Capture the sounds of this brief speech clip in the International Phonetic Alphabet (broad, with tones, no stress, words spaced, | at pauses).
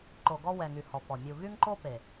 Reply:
ǃo˨ɡɔ˦ wɛ˨ŋy˨ hɔ˨pɔ˨ mʲu˨ɣy˦ŋǃo˦ pe˨